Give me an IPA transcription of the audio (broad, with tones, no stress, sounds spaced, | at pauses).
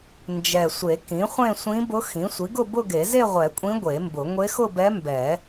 n d͡ʒ ɛ˨˩ sʷ e˨˩˦ k ĩ˩˥ χʷ ẽ˥˧ sʷ ĩ˧˥ b ʊ˧˥ x ĩ˩˥ sʷ i˩˥ ɡ ʊ˥˧ b ʊ˥˧ ɡ e˨˩˦ z e˥˧ ʁʷ ɛ˨˩˦ kʷʼ ĩ˧˥ ɡʷ e˨˩˦ m b ʊ˨˩˦ ŋʷ e˧˥ x ʊ˥˧ b ɛ˧˥ m b ɛ˨˩˦